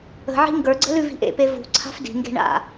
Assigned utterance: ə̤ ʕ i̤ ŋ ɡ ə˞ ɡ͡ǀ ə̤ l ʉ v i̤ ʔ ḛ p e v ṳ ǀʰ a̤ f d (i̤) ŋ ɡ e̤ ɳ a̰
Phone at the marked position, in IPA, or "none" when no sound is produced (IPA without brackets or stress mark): i̤